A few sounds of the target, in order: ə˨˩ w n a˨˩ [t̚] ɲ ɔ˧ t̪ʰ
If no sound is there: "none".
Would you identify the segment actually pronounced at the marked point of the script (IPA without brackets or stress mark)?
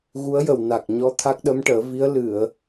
k̚